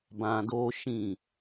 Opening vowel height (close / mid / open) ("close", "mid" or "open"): open